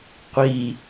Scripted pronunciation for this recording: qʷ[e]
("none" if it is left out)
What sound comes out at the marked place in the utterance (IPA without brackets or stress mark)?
i